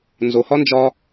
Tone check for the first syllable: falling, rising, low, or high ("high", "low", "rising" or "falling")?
low